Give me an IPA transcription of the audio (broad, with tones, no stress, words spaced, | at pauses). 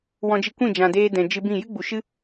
wɔ̃˧d͡ʒi˧ kʷĩ˦˨d͡ʒã˨deː˧ dɛ̃˨d͡ʒɨ˧bĩ˦˨ jɨ˦ɡ͡bu˨ʃɨ˦